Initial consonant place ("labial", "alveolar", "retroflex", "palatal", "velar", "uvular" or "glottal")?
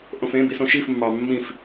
glottal